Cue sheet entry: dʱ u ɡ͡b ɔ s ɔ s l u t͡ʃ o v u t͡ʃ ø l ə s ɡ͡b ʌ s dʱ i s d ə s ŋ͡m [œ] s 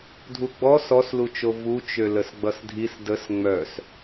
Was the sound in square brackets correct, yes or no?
yes